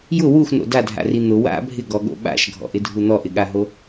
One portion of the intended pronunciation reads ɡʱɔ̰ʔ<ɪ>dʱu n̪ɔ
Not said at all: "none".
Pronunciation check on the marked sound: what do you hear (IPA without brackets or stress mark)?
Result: ɪ